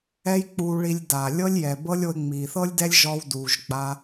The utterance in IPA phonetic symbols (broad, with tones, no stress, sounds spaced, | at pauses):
ɛ˦ j k͡p uː˧ ɭ i˧ lʲ d a˨ lʲ ɤ˦ lʲ j ɛ˨ b ɤ˦ lʲ o˧ e̯ ŋ͡m iː˨ θ ɤ˦ lʲ d ɛ˦ lʲ ʒ ɔ˧ w d uː˨ ʒ ɡ͡b a˧